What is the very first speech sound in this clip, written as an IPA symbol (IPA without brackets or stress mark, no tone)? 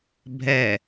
bʱ